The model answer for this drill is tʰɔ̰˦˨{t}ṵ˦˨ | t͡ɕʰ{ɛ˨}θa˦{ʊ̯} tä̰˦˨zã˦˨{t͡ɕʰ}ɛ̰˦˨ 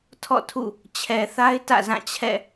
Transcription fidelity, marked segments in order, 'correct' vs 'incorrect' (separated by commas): incorrect, correct, incorrect, correct